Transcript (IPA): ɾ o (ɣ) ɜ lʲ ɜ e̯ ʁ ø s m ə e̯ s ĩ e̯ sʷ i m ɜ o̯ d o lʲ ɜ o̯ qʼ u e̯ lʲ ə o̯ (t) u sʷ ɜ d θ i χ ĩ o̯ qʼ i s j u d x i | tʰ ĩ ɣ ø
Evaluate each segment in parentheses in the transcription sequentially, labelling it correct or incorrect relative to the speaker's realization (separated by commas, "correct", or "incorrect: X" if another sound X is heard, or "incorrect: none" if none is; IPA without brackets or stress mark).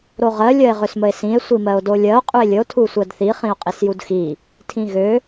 incorrect: ʁ, incorrect: tʰ